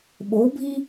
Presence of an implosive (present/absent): present